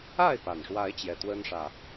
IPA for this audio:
a˥˨ ɪ̯ p a˩ n ʂ w a˨˦ ɪ̯ t͡ɕ j ɛ˨˩ t̪ w ə˦ n ʂ ä˨˩

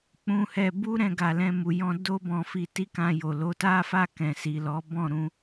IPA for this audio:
k͡p ũ˧ h ɛ˧ b u˦ ɾ ɛ̃˧ ɡ a˨ l ɛ̃˧ m u˨ j ɔ̃˧ d o˦ b ɔ̃˧ f i˧ t i˦ k ã˧ j o˨ l o˨˦ t a˦ f a˦˨ k ɛ̃˨ s i˨ l ɔ˨˦ b ɔ̃˦˨ ɾ ũ˧

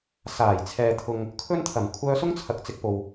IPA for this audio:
s aː˨˩ j t͡sʰ ɛː˨ t̪ʰ ʊ˨ ŋ | kʰ ɵ˥ n t̪ʰ ɐ˨˩ m kʷʰ œː˧ s ʊ˥ ŋ t͡sʰ ɐ˨ k̚ t͡s ɪ˧ k̚ p o˨ w

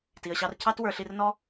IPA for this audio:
t i˩ ə̯ ɕ ɑ˨ r cʰ ɑ˦ t w ə˞˨ ɬ i˨ r n ɔ˦

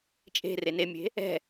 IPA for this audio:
t͡ʃʼ e̤ r e n e mʲ e̤ | ɛ̤

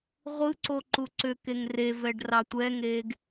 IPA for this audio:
ʁʷ ɯ ǀ o ǃ u ǀ ʏ k e ŋ r e v ɛ ɖ r ɑ tʷ ɛ ŋ eː ɡ

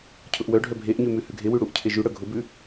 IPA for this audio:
cʰ ʊ ʔ w œ ɖʱ œ bʱ e ʔ ɲ ʉ m ʉ h ʉ ɡʱ e w ʉ ɽ u ʔ cʰ e ʒ ʉ ɽ œ ɡʱ ʊ b ʉ

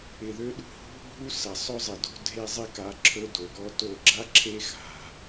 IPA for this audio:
ɪ˨ ð ø˦ ɗ ṳ˦ h ṳ˦ bʱ u˦ s ɐ˨ sˤ ɵ˦ zˤ ɪ˨ d o̤˦ dʱ e˦ zˤ ɪ˦ k a˨˦ ǁʰ ɵ˦ d o˨ ɡ ɔ˦ t o˦˨ ɡ͡ǁ a˦ ǁʰ e˦ x a̤˨

